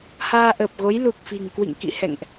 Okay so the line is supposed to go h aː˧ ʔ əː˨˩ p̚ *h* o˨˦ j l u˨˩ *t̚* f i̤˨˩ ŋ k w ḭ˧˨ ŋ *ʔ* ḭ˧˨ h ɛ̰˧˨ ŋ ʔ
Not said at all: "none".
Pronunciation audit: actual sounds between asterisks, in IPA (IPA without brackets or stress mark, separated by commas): ɣ, k̚, k